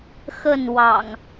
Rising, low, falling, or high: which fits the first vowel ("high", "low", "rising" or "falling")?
falling